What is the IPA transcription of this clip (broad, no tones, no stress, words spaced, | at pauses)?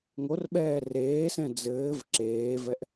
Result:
ŋorɓɛː reːsɛ̃ d͡zɘːv ǁeːvɛʔ